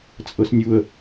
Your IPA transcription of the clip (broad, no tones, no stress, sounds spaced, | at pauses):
t͡sʼ ɤ s nʲ u ə̯